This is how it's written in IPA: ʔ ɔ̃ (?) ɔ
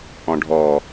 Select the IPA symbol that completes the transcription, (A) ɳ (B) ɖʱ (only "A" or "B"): B